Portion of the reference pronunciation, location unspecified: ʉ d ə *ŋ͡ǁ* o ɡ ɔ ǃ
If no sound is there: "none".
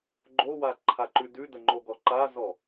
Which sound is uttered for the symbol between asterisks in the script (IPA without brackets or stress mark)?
ŋ͡ǃ